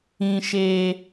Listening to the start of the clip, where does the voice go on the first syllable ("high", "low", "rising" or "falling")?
high